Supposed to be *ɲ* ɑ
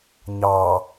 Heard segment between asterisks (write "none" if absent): ɲ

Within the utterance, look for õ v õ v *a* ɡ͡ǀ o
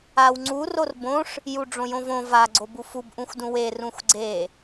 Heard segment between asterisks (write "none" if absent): a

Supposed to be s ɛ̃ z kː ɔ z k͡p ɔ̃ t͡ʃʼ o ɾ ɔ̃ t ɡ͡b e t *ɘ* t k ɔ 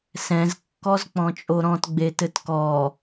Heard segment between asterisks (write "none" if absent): ɘ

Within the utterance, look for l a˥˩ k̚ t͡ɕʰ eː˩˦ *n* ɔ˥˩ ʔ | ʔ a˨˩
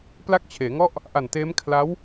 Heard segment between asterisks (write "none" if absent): ŋ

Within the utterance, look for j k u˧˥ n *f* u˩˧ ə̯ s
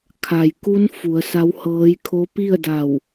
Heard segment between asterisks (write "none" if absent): f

